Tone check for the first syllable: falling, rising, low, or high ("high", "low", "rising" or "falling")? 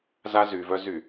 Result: high